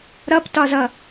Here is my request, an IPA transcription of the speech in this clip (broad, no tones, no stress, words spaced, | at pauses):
ɾʌptɒzʌ